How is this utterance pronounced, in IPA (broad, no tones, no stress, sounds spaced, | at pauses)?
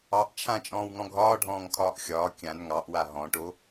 ɑ ʔ t͡ʃʰ ã t͡ʃʼ ɔ̃ː w ŋ ɔ̃ ɡʱ ɒː ɖʱ ɔ̃ː ŋ kʰ ɒː ʔ xʲ ɒː kʲ ã n ŋ ɑ ʔ w a ɦ ɔ̃ ʈ o